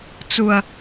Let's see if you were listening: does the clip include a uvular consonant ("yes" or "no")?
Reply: no